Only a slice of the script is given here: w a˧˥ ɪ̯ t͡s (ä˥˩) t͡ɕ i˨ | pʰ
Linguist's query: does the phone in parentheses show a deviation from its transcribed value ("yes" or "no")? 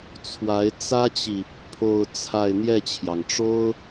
yes